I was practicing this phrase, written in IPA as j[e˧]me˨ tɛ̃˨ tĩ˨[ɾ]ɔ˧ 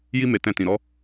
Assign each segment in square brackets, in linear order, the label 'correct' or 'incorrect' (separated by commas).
incorrect, correct